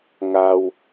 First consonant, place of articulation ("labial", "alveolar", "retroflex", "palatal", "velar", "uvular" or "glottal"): velar